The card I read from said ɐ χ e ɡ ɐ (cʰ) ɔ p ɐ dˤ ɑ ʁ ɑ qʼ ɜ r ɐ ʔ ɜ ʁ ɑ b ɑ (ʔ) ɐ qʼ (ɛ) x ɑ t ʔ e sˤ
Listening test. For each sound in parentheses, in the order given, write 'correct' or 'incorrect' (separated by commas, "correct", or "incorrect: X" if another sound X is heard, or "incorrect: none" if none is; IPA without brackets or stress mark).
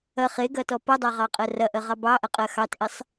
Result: incorrect: t, correct, incorrect: ɜ